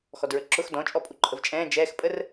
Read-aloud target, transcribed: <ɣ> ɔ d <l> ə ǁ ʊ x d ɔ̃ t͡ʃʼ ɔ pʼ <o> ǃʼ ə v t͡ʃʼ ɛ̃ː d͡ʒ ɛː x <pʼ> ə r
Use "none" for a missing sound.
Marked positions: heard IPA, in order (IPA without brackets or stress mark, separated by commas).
x, ɹ, u, pʼ